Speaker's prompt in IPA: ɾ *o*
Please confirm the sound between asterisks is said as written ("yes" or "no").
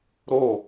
yes